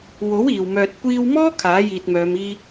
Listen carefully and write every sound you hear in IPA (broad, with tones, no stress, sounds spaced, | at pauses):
w o˨˥ w iː˨ w m œː˨ t̚ kʷ iː˧ w m ɔː˥ kʰ aː˨˥ j iː˨ t̚ m œː˨˧ m iː˥